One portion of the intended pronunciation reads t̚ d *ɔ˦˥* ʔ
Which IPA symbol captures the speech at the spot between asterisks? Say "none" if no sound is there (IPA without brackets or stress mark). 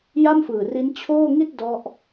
ɔ˦˥